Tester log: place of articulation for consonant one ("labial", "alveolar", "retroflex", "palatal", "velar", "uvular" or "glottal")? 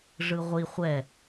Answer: retroflex